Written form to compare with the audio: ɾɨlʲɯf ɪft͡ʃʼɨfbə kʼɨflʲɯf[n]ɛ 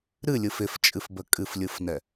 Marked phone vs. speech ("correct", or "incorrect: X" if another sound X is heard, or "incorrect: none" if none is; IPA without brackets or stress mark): correct